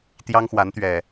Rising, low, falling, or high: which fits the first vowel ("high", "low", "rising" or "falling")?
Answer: high